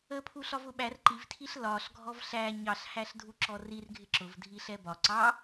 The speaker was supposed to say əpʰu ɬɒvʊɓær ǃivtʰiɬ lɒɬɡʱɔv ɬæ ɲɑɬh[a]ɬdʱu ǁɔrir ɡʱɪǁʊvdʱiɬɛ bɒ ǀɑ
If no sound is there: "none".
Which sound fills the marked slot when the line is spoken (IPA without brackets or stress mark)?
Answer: æ